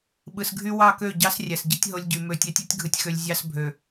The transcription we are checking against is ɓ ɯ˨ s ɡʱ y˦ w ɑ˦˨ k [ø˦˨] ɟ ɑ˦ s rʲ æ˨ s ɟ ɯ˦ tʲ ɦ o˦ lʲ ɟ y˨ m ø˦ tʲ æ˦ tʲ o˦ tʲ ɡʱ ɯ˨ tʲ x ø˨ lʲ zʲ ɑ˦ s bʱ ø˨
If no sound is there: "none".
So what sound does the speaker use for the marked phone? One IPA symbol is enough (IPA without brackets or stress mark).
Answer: ø˦˨